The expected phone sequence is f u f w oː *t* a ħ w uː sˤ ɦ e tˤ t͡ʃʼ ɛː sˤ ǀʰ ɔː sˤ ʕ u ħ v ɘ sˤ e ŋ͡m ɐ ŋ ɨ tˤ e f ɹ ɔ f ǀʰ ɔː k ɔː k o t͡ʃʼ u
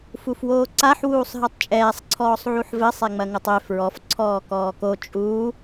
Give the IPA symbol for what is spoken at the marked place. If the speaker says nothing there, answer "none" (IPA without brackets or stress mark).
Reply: ǀ